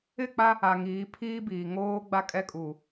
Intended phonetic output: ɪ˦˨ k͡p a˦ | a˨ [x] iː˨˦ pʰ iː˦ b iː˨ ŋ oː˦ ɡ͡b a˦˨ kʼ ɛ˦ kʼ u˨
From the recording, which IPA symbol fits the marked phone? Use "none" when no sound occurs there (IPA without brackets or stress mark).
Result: ŋ